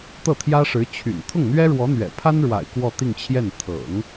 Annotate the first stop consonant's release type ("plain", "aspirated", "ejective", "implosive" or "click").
plain